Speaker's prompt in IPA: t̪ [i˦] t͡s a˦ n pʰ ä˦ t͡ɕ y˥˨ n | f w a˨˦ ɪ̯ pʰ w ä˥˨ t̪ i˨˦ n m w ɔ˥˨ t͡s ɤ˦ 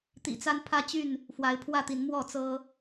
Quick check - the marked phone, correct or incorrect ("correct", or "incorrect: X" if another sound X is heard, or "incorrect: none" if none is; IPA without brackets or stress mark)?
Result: incorrect: ḭ˨˩